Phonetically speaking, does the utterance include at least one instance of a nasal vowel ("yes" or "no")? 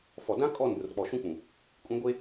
yes